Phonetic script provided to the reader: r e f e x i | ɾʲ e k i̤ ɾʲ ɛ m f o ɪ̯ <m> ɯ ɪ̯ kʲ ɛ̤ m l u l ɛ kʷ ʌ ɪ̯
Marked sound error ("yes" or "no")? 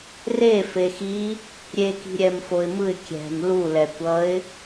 no